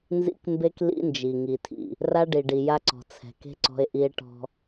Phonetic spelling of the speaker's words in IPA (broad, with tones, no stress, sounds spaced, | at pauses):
n z ḭ˦ k m b e˦ k l ḭ˦ n d͡ʒ i˨ ŋ i˨ tʰ ḭ˨ | r a˦ ɖ i˨ ɖ i˨ j a˦ ǀ ɔ̤˨ t͡sʰ ɛ̤˨ k e̤˦ ǀ ɔ̤˦ e̯ ʔ i˦ e̯ ʈ ɔ̤˦